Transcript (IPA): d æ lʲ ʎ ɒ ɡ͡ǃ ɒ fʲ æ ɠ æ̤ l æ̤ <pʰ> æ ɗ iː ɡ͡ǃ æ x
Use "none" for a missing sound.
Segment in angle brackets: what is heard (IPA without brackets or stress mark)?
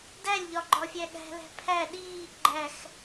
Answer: pʰ